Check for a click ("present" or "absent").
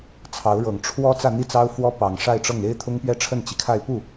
absent